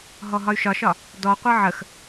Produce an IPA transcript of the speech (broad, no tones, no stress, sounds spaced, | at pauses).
ɦ ɔ ɦ ɒ y̯ ʃ ɒ ʃ ɒ | d ɔ qʷ ɤ ʕ ə x